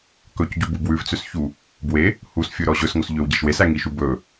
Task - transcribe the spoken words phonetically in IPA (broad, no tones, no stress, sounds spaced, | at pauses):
k ɵ c ɟ u b u b w ʉ v t͡s ø s ç u | b w e | h u s fʲ ɵ ɾ ɔ ʑ ɵ s ŋ o s ʎ ø w ɟ e ʃ w e s æ ŋ i ʃ u b ɵ